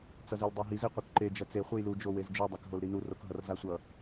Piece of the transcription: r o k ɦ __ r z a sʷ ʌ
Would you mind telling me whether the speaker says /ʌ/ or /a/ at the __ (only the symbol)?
ʌ